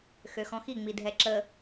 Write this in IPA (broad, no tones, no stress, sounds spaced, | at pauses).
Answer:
x ø x ɔ̃ x i ŋ͡m i dʱ ɛ ǁ ə